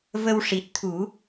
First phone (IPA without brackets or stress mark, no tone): v